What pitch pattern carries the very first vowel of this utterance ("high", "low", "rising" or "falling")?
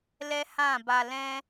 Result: high